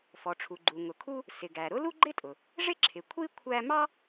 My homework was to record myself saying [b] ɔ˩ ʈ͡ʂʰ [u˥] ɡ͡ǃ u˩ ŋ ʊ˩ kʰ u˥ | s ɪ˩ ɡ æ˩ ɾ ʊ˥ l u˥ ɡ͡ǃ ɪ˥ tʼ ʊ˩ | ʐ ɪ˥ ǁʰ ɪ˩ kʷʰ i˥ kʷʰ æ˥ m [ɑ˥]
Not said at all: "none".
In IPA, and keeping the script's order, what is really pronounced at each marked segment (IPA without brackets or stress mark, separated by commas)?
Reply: f, u˩, ɑ˥